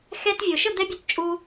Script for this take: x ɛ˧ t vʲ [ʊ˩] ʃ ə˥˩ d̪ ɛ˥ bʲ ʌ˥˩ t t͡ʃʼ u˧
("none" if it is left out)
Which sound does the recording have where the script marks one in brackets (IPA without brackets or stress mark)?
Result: ʊ˩